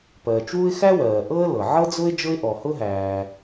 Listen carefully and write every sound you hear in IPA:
p ɜː˩ t͡ʃ w u˥ ɪ̯ x æ˥ w ɜː˩ ʔ ɤ˥ ə̯ l ɤ˩ ʕ ɤ˥ d͡z ʊ˥ ɪ̯ d͡ʒ ɤ˥ ɪ̯ ʔ ɔ˩ h ʊ˥ ɦ æː˩

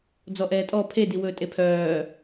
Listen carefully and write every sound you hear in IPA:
d͡z ɔ ʔ ɛː tʼ ɔ pʰ e d i w ɵː tʼ e pʰ œː

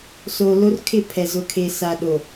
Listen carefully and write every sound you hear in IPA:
s o˨ l o˦ r kʰ ɪ˦˨ pʰ ɛ˨ z ʊ˨ kʰ e˨ s a˨ ɗ o˨

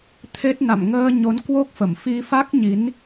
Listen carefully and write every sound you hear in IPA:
t̪ʰ e˦˥ t̚ n a̰˧˨ m ŋ əː˧ ɲ o˨˦ n k w o˦˥ k̚ f ə˧˩ m f i˧ f a˦˥ k̚ ɲ i˨˦ n

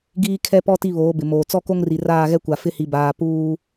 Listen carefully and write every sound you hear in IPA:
ɡ iː˦ kʰ ɛ˦ p ɔ˦ t i˦ β oː˨˦ b ɪ˨ m oː˨ t͡s ɔ˦ k o˦ ŋ r i˨ r aː˦˨ ɣ ɛ˦ kʷ a˨ f ɪ˦ h i˨ b aː˨ p uː˦

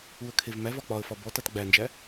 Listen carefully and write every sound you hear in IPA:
u ə̯ kʰ e v m æ v ɒ k͡p ɒ ə̯ f ɒ b ɔ t a t ɡ͡b æ n d͡ʒ æ

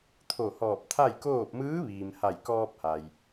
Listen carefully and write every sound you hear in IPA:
t̪ʰ o˧˩ h ɔː˧˩ p̚ t̪ʰ a˥˨ j k oː˥˨ p̚ m ɯː˧˥ ʋ iː˩ m h a˧˩ j k ɔː˧ p̚ h a˩ j

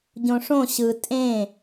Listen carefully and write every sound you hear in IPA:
ɟ õ ʂ õ ɕ ɯ tʼ ẽ

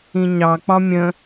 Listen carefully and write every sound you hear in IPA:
ĩ ɲ ɑ k͡p ɒ mʲ ə̃

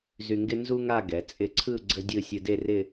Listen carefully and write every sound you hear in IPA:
z y˧ ŋ ɡ ɪ˥ n z u˥ ŋ a˥˧ ɡ ɛ˩˧ t͡sʼ ɪ˧ ǀʰ ɯ˥˧ ɡ͡ǀ ə˥ dʲ ɯ˥˧ sʲ ɯ˧ d e˥˧ r ɪ˥˧

